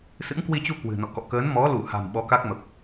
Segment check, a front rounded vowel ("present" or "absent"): absent